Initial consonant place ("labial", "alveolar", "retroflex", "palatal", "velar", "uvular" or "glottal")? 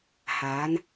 glottal